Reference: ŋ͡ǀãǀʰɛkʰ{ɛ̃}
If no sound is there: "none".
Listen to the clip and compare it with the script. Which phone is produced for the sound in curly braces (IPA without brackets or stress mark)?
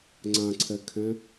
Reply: ɛ̃